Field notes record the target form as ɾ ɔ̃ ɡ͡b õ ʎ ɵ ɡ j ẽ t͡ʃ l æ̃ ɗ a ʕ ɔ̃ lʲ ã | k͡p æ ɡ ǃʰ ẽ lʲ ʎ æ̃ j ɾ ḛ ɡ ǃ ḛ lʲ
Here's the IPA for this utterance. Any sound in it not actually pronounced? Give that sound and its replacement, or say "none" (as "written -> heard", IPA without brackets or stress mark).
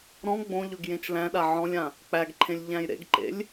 none